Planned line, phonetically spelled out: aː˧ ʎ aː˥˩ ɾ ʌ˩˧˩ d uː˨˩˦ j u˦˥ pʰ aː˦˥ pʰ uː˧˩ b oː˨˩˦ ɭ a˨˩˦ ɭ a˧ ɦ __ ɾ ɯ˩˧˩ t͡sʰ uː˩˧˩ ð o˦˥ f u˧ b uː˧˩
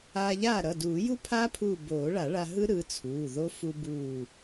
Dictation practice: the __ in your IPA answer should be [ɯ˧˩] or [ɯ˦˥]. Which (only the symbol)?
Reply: ɯ˦˥